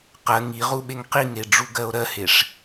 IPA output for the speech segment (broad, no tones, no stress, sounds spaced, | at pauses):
q ɜ ŋ i ʁ u ɓ e ŋ q i ŋ e ɖ͡ʐ u ɡ ɜ o̯ ɾ ɜ h e ʂ